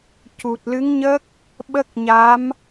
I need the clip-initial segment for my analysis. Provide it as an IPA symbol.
c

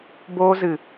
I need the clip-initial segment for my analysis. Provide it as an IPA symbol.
b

